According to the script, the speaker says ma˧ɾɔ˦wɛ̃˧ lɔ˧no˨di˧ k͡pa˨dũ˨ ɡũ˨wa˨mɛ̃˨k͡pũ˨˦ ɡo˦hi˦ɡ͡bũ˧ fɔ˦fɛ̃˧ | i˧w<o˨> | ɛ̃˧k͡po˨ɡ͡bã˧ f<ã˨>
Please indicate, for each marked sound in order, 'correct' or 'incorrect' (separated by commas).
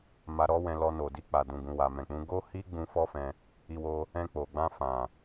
incorrect, correct